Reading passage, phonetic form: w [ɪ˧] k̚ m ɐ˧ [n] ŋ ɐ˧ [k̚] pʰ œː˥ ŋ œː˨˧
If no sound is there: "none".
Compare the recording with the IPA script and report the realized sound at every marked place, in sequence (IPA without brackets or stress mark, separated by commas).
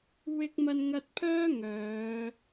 ɪ˧, n, t̚